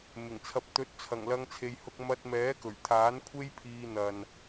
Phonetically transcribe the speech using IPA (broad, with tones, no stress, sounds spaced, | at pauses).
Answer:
m ɪ˨˩ ŋ t͡sʰ ɐ˨ p̚ t̪ ɵ˨˥ t̚ t͡sʰ ɐ˨˩ ŋ l ɐ˧ ŋ t͡sʰ e˨ j h ʊ˧ k̚ m ɐ˧ t̚ m ɛː˨˥ k ɵ˨˩ ɥ t̪ʰ aː˨˥ n kʷʰ e˥ j pʰ iː˧ n̪ ɐ˨ n